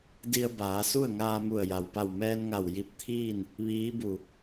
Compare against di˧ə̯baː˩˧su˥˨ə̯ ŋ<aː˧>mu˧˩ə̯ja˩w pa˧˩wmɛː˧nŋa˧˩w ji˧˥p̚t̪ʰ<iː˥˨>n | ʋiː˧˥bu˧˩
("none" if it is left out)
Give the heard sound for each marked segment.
aː˧, iː˥˨

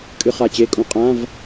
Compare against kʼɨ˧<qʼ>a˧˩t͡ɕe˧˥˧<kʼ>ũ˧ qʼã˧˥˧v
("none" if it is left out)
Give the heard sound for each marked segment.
χ, kʼ

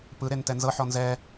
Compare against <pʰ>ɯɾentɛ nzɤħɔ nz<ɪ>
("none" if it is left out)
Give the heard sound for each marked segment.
p, ɛ

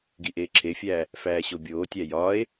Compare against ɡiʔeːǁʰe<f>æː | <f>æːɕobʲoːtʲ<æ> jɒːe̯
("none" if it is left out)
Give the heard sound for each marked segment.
fʲ, f, æ

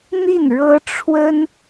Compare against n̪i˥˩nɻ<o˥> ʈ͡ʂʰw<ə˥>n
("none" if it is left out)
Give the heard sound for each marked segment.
ɤ˥, ə˥

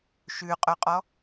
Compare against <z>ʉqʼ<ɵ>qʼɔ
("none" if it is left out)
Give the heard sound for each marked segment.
ʃ, ɵ

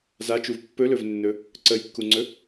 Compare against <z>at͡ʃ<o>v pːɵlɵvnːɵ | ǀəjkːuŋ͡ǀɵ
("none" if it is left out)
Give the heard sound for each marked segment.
z, u

